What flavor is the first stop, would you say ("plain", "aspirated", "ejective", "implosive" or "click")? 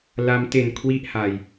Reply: plain